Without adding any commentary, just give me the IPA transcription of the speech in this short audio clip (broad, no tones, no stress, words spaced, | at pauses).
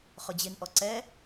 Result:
χʊd͡ʑɪnʔɔ ǀɛ